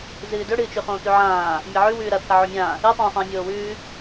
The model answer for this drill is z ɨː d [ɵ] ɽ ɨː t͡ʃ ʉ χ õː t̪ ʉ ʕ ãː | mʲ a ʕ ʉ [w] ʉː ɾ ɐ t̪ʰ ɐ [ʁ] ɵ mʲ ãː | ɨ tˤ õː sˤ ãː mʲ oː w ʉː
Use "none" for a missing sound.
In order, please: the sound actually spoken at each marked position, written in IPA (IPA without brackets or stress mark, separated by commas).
ɵ, w, ʕ